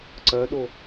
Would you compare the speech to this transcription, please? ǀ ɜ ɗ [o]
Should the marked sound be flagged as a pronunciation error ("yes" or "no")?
no